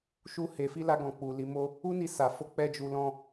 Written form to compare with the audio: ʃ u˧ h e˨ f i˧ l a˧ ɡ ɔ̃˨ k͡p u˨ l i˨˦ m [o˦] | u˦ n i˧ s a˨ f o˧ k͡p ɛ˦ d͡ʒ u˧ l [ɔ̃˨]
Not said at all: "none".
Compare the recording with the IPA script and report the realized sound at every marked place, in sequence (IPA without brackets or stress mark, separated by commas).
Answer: o˦, ɔ̃˧